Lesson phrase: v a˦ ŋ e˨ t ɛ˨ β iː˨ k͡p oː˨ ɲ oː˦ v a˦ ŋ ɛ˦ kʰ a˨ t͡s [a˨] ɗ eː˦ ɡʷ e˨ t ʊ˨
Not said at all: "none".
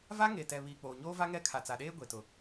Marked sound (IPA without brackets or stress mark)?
a˨